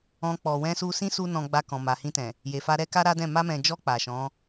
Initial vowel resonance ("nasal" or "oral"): nasal